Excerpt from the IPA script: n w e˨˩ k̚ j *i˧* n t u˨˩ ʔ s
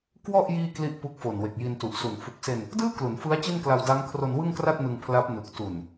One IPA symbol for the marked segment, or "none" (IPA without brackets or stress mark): i˧